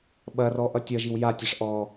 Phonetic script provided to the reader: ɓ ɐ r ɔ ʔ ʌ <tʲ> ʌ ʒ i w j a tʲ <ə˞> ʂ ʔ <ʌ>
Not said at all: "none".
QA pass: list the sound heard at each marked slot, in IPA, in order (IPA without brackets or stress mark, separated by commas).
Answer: tʲ, ʌ, ɔ